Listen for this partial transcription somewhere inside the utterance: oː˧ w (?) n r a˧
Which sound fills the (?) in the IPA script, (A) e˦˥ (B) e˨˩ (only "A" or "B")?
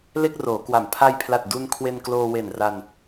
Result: B